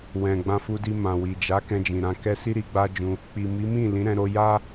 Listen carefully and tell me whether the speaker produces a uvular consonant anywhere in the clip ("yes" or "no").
no